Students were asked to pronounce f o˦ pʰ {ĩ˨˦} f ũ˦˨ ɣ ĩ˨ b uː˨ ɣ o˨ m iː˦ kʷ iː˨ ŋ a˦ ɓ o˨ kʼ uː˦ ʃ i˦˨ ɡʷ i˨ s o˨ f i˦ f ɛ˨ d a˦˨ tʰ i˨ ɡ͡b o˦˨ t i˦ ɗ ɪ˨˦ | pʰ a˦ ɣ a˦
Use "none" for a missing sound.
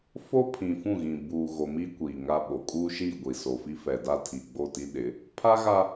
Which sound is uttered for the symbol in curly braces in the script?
ĩ˨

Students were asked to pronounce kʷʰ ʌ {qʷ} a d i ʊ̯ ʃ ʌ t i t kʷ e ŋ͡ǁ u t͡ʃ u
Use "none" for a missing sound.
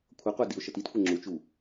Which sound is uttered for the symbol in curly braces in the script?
qʷ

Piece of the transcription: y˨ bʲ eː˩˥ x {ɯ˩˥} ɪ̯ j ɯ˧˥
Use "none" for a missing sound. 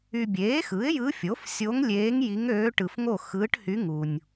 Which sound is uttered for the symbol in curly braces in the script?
ɯ˩˥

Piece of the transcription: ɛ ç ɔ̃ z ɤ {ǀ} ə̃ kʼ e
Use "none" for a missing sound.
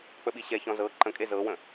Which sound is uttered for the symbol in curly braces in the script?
ǃ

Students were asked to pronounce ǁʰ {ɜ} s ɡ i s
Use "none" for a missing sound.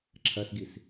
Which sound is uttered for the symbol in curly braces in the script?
ɜ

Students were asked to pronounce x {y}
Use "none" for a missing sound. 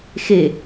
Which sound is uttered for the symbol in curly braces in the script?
e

